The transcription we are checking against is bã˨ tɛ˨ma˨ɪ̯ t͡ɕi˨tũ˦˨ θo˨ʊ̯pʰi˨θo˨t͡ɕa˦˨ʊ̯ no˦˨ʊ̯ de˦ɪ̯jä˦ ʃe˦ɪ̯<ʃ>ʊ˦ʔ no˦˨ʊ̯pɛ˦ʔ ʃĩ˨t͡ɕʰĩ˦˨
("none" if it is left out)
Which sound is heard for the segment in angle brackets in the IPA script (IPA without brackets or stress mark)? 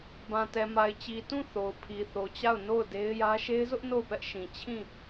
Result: z